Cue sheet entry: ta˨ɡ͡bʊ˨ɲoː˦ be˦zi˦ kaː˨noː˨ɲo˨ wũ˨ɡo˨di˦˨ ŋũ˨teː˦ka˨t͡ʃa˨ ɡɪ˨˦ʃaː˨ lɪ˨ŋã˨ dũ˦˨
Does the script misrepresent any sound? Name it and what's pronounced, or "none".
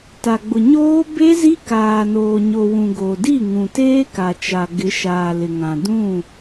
none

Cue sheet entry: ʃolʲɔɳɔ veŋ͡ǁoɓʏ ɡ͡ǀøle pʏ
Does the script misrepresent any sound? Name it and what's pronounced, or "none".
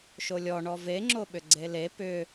ø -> e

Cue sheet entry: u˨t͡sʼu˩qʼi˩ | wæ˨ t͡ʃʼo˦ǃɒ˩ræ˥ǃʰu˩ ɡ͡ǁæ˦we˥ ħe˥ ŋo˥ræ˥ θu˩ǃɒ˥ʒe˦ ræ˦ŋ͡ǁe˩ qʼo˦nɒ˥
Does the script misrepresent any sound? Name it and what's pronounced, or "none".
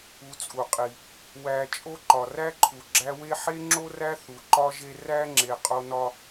ŋ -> ŋ͡ǁ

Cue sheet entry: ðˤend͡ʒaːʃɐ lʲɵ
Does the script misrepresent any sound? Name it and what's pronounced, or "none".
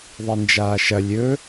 none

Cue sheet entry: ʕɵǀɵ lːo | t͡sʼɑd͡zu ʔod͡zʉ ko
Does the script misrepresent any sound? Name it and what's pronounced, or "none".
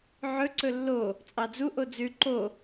k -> ǃ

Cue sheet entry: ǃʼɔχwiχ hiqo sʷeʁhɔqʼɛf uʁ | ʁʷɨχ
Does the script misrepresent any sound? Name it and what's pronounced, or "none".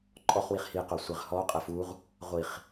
ɨ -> i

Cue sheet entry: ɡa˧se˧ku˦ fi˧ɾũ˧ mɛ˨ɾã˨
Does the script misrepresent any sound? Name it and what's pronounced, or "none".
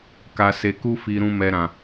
ɡ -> k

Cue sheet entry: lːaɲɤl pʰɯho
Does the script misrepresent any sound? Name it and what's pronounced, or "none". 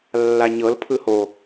none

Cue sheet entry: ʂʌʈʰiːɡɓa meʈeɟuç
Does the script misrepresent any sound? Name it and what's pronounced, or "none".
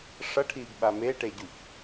none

